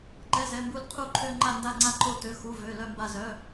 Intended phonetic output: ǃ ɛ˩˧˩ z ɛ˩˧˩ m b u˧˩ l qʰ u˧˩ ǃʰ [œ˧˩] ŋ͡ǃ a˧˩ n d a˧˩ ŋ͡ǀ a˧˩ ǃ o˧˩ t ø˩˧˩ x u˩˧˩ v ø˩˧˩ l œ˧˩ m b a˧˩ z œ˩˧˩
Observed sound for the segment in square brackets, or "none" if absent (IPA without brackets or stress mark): ø˧˩